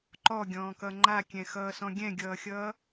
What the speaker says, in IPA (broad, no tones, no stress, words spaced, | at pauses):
ǃɔɡʲɔ̃ːkʌ ŋ͡ǃakʲɛ̃xʌːsɔ̃ ɡʲɛ̃ɡʲʌːxʲʌː